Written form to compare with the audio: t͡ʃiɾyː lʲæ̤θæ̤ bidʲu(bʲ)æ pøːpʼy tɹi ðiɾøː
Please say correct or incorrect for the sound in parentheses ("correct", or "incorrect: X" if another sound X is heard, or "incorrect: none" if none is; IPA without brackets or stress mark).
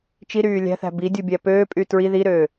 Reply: correct